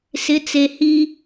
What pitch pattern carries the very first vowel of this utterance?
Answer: rising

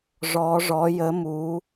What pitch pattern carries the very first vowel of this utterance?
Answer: rising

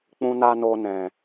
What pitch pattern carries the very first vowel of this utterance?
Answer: high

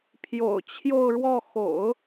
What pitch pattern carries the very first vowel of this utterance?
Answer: low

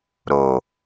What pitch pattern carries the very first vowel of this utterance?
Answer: low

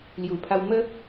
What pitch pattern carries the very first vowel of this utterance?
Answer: low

